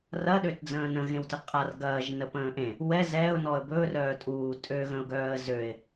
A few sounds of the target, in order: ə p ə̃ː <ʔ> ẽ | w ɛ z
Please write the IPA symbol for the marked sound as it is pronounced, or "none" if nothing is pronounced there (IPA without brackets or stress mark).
ʔ